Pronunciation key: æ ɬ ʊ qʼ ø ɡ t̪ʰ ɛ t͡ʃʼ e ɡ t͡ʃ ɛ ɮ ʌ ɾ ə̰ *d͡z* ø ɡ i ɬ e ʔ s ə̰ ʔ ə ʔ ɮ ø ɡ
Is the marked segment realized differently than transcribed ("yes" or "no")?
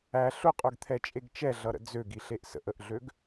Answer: no